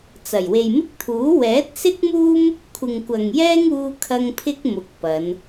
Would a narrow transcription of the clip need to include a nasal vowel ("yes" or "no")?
no